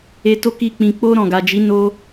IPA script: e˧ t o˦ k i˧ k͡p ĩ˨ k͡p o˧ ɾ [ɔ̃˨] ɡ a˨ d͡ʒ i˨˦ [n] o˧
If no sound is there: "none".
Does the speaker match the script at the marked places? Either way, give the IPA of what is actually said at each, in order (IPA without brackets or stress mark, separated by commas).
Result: ɔ̃˨, n